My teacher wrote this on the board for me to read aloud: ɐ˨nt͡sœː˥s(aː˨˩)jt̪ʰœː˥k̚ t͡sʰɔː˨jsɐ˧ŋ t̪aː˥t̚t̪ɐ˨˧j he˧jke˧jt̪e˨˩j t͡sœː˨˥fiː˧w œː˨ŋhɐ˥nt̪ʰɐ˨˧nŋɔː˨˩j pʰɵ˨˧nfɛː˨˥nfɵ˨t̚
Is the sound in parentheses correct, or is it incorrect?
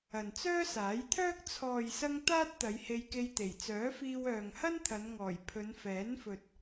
incorrect